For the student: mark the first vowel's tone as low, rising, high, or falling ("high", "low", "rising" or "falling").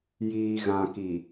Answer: low